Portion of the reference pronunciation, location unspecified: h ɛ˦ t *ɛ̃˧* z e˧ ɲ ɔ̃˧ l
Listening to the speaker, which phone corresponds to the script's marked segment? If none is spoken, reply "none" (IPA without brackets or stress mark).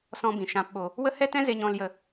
ɛ̃˦